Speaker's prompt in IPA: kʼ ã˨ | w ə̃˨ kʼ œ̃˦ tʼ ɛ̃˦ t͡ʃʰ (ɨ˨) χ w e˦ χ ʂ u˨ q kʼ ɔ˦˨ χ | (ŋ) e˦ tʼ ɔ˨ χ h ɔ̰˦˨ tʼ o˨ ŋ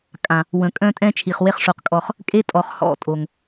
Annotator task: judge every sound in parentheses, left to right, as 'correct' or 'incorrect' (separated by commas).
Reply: incorrect, incorrect